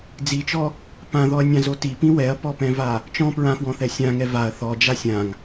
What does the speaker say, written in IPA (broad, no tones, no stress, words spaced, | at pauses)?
d͡zit͡ʃɔ | pãðɔɐ̯nʲãzo tipĩ wɛɐ̯pɔpɛ̃va | t͡ʃɔ̃ pɹãfwɔ̃θɛ sʲãŋɛ vaɐ̯ θɔd͡ʒa sʲãŋ